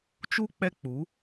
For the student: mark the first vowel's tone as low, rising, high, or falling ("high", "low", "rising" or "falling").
high